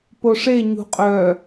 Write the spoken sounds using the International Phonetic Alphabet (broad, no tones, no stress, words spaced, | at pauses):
poʂe ɲṳqʼœ